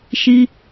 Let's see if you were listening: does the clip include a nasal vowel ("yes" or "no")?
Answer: no